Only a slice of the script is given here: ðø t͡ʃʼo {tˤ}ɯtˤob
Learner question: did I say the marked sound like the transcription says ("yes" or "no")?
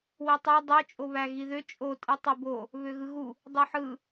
no